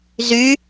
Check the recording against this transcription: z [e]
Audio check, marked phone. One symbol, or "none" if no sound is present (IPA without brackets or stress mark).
y